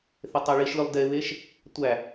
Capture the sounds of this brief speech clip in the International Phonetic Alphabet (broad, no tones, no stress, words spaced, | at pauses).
θetˤæɭiʃlʲolˠ deβeʃ | tʷæ